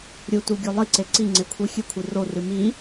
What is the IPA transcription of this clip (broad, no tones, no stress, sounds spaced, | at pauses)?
ɾʲ u t u ɡʲ o lˠ i ǀ e ǀ i ŋ͡ǀ e kʷʰ i xʲ ɨ kʷʰ i r o r ɨ m i